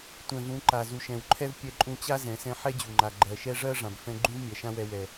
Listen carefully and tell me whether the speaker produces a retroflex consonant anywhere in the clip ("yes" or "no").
yes